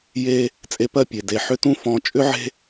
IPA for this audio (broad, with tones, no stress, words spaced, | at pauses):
je˦ | t͡sʼe˧pɜ˦˨ pʲe˨de˨ ħʏ˦tũ˦ fɔ̃˧ t͡ʃʼʏ˦ʕe̤˦